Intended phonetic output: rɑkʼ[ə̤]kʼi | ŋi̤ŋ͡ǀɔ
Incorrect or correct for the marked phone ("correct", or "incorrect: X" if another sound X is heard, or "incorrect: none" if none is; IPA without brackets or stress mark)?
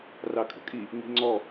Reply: correct